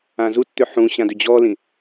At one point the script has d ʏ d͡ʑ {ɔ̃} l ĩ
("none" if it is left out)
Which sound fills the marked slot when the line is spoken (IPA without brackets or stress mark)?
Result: ɔ